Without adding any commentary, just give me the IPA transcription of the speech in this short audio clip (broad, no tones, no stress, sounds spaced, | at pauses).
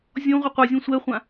zʲ ɔ̃ ʁʷ ʌ qʷ a zʲ ɔ̃ sʷ ɛ χʷ ã